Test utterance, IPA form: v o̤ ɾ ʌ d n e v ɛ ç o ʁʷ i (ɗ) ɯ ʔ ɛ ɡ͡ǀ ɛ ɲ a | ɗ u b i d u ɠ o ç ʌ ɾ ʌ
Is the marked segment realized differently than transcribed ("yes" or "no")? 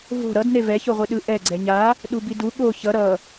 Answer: no